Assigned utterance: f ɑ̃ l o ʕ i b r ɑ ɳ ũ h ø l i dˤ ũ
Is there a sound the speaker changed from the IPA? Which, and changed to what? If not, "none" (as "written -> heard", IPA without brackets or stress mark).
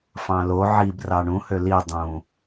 none